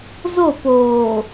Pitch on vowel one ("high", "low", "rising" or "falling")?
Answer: falling